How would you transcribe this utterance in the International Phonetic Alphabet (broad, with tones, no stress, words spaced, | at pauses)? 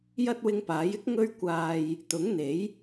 jɐ˥t̚wɪ˧ŋpaː˨˥jɪ˥k̚ ŋɵ˧ɥkʷaː˨j | t̪ʊ˨˥ŋn̪e˨˥j